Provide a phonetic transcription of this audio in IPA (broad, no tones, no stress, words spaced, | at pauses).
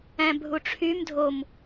æ̃bʱuʈ͡ʂʰym dʱom